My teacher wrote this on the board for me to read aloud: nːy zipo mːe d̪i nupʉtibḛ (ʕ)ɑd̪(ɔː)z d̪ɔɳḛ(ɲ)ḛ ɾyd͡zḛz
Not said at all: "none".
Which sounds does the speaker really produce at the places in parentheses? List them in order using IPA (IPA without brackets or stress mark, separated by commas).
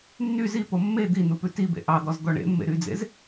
ʔ, ɔ, mː